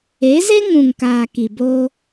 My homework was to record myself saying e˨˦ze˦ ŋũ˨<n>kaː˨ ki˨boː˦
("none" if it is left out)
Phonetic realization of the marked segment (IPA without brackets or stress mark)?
ŋ